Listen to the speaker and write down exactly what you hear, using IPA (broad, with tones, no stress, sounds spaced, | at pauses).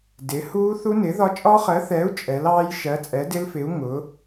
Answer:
d ɪ˨˥ h uː˦˥ θ u˦˥ n ɪː˨˥ ð ɒ˦˥ t͡ʃʼ ɒ˦˥ χ ɜ˨˥ θ ɛː˨˥ u̯ t͡ʃʼ ɛ˨˥ l ɑː˦˥ j ʃ ɜ˨˥ t͡sʼ ɛ˨˥ d ɪ˦˥ l f ɪ˨˥ u̯ ŋ ʊː˨˥